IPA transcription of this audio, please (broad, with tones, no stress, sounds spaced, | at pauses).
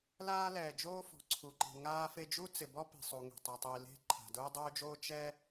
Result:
l aː˥ l ɛː˩ d͡ʒ oː˥ f ɔ̤˩ ǀʰ u˩ ǃ i̤˩ ŋ aː˥ f e˥ d͡ʒ u˥ t͡s ɪ˩ b ɔ˥ p i̤˩ sˤ u˩ ŋ e̤˩ tˤ ɛ˩ tˤ i˩ l e̤˥ ǃʰ a̤˩ d ʊː˥ dˤ oː˥ d͡ʒ oː˥ t͡ʃ ɛ˥